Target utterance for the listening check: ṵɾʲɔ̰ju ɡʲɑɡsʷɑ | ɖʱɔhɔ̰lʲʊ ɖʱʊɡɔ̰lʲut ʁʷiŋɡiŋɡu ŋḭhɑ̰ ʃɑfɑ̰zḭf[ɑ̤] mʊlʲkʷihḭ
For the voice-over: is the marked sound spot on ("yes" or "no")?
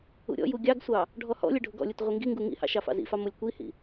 no